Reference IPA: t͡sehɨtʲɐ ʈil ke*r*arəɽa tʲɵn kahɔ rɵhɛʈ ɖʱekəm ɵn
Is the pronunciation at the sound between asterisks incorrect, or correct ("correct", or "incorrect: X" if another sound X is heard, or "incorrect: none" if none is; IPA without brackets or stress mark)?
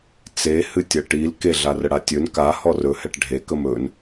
incorrect: ɮ